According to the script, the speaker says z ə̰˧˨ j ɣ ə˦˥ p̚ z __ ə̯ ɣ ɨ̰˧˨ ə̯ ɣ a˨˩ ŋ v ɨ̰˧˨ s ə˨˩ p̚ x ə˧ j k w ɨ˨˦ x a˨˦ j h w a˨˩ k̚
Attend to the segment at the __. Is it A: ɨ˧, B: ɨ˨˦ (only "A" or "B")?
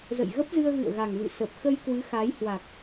A